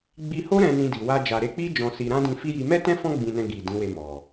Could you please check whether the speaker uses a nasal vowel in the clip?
yes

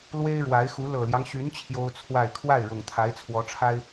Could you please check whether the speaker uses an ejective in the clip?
no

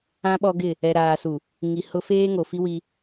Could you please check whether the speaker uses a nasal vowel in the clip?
yes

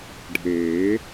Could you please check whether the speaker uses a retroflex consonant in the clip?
yes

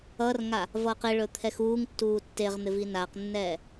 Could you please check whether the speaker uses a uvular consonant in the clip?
yes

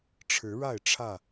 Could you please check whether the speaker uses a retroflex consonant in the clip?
yes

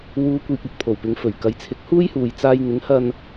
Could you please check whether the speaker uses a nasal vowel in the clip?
no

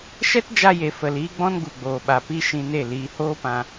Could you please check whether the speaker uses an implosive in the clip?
yes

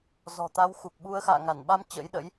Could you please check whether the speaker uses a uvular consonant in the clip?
no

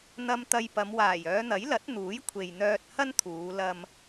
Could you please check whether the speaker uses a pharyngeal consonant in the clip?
no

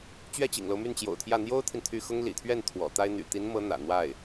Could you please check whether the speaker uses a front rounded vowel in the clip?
yes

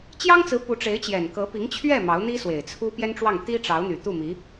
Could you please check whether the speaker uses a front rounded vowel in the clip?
yes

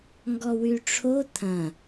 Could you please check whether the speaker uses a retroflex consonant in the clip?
yes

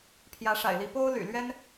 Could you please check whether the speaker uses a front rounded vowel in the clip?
yes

